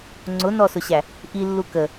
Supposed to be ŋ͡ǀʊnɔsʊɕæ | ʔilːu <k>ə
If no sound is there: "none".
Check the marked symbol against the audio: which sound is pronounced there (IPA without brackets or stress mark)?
k